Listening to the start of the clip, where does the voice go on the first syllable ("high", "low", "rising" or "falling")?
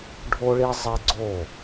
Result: high